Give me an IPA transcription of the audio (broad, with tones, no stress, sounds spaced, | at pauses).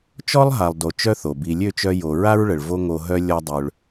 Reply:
t͡ʃ ɔ˦ lˠ ɦ a˨ lˠ d o˨ t͡ʃ œ˦ θ o˨ b i˨ lʲ ø˦˨ t͡ʃ œ˧ j o˨ ɹ a˦ ɹ ɭ ə˨ ɭ v o˦ ŋ o˧ ɦ œ˦ lʲ ɔ˦ dˤ ø˧ ɭ